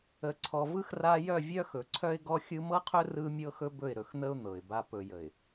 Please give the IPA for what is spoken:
ə˨ ǀʰ ɔ˨ v ɯ˦ x r a˦ j œ˦˨ vʲ œ˦ x ɵ˨ ǀʰ œ˦ ɪ̯ ɡ ɔ˦ xʲ ɯ˦ m ɤ˦ qʰ ɵ˦ r ɯ˦ mʲ ɤ˦ x ɵ˦ b ɵ˦˨ ɪ̯ ɾ ɵ˨ x n̪ ə˦ ʊ̯ n̪ ɤ˨ ɪ̯ b a˦ p ɵ˨ j ə˨ ɪ̯

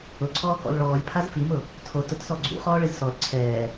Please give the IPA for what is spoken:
ʊ ǀʰ ɔː k ɔ̰ l ɭ ɔː lʲ pʰ a z f i m ʊ | tʰ o t ʊ t s ɔ ɡ͡ǀ ṵ χ ɔː ɭ ɪ z s ɔ l ǀʰ ɛː

